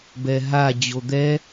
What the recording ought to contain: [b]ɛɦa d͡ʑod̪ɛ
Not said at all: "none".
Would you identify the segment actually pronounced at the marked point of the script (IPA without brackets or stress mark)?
b